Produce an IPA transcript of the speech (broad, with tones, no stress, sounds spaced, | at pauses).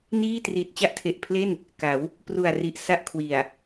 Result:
n iː˥˩ t r iː˨˩ t̚ t͡ɕ a˥˩ ʔ tʰ e˨˩ ʔ pʰ l e˥˩ n | k a˩˦ w | p r u˨˩ a̯ r i˨˩ ʔ s a˥˩ ʔ kʰ w i˨˩ a̯